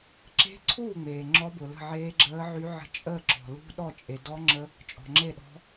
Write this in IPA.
ǁ e̤˧˥ ǀʰ u˥˩ ŋ͡m eː˩ ŋ͡ǁ ɔ˧˥ b ʊ˩ l ə̤˥˩ ʕ eː˧˥ ɡ͡ǁ əː˧˥ ʕ y˧˥ ʕ ə̤˧˥ t͡ʃʼ əː˥˩ ǁ ɔ̤˩ l ṳ˧˥ ɗ ɔ˥˩ t͡ʃʼ e˩ d ɔ˧˥ ŋ͡ǁ ə˧˥ | t͡ʃʼ ɔ̤˩ ŋ͡ǁ e˥˩ ɗ ɔ̤˧˥

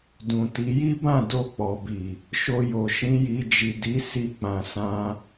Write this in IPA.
d ũ˨ t i˨˦ j i˦ b ã˦˨ d o˧ k͡p ɔ˨ b i˨ | ʃ o˧ j o˨ ʃ ĩ˨˦ j i˧ d͡ʒ i˨ d i˨˦ s i˧ k͡p ã˨ s ã˧

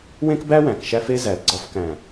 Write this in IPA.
w ẽ˦ k b æ˦ w æ̃˨ k ʃ æ˦ f e˦ z æ˨ l ɡ͡ǀ ɒ˧ f k æ̃˨

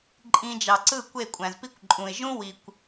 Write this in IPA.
ǃʼ ĩ˧ d͡ʒ ɑ˨ ǀ ɯ˦˨ kʷ e˦˨ kʷʼ æ̃˨ z p i˦ kʷ ǃʼ ũ˨ ɪ̯ ʒ ũ˦ w i˨ kʷ

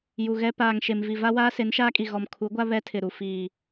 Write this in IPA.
j u˨ ɣ ɛ˦ p aː˨ ŋ ʃ e˨ m v i˨ v a˦ w aː˦ s e˨˦ n ʃ aː˦ kʼ i˨ ɣ ɔ˨ m kʰ u˨˦ ɡʷ a˦ β ɛ˦ tʰ ɪ˨ ɾ u˨ f iː˨

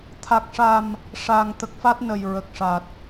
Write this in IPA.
t̪ʰ a˨˩ k̚ ʂ a˨˩ m | ʂ aː˨˩ ŋ t̪ ə˨˩ k̚ f a˦˥ t̚ n ə˨˩ j ɹ ə˨˩ k̚ ʂ a˨˩ t̚

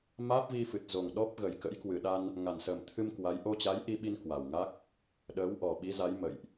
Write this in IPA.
m aː˦˥ p̚ v i˧ f ɨ˨˩ t̚ z o˨˩ ŋ ɗ ɔ˦˥ p̚ ɣ ə˨˩ j k ə̰˧˥ j k w ɨ˨˩ ɗ a˧ n | ŋ a˨˩ n s əː˨˩ m t̪ʰ ɨ˧ m k w a˨˦ j ʔ o˧ t͡ɕ a˨˦ j ʔ i˧ ɓ i˧ n k w a˨˩ w ŋ a˦˥ k̚ | ɗ əː˨˦ w ʔ ɔ˨˩ ɓ i˨˦ z a˨˦ j m ə̰˧˨ j ʔ

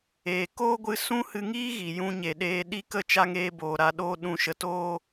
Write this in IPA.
eː˨ k oː˦ ɡʷ ɨ˧ s ũ˦ h ɨ˧ ŋ iː˦ ɣ i˨ j ũ˧ ɲ e˨ ɗ eː˧ ɗ i˦ k ə˦ t͡ʃ a˧ ŋ eː˧ b oː˨ ɾ a˧ ɗ oː˧ ɗ ũ˨ ʃ ə˨ t oː˧

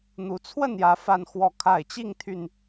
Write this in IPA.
n̪ u˨˦ t͡sʰ w ə˥˨ n j ä˨˦ f a˦ n x w ɔ˥˨ kʰ a˥˨ ɪ̯ t͡ɕ i˥˨ ŋ t̪ʰ y˨˩ n

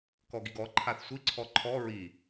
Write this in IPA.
k ɔ ɡ i ɡ ɔ ǃʰ a θ sʷ i ǀʰ ɔ ǃʰ ɔ ɹ i

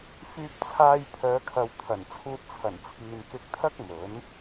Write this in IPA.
f yː˧ p̚ t͡sʰ aː˧ j pʰ œː˨˧ kʰ ɐ˨ w t̪ʰ ɐ˨˩ n t͡sʰ uː˧ t̚ t͡sʰ ɐ˨˩ n t͡sʰ iː˨ n k ɪ˧ k̚ t̪ʰ ɐ˥ k̚ m ɵ˨˥ n

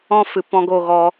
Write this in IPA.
ɔ̃˦ f ɨ˨ p ɔ̃˧ ɡ o˦˨ ɣ ɔ˧

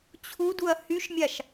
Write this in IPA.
t͡ɕʰ u d u ɐ̯ h y ʃ mʲ a ʃ

